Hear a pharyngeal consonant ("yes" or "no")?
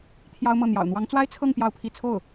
no